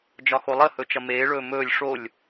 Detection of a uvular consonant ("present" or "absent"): absent